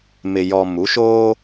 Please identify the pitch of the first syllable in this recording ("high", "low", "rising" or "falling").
low